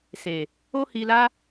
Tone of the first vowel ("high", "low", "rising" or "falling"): low